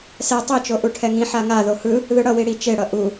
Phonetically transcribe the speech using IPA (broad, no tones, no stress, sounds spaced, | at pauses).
s ɛ tˤ i t͡ʃ o ʔ u ʈʰ ɛ ŋ ĩ ħ a ŋ a ð o h ɯ | ð ɯ ɽ ʌ w i ɽ i t͡ʃ e ɽ ʌ ʔ u